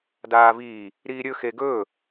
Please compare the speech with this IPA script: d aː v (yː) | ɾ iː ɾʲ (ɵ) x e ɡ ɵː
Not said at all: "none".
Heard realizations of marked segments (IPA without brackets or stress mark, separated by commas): iː, ɵ